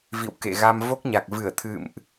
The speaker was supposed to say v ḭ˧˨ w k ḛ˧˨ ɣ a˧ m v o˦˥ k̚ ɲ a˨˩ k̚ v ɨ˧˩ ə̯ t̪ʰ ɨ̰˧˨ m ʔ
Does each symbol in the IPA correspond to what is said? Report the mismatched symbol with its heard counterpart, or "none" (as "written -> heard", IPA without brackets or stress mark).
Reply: none